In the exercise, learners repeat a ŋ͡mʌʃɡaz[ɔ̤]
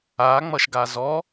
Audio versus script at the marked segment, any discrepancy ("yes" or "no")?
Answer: yes